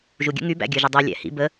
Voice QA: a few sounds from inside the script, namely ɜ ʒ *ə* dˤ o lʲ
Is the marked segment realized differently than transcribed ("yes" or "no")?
no